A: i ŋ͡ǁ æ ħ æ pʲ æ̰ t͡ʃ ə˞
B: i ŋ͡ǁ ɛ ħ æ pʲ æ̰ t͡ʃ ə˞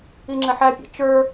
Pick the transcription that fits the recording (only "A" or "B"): B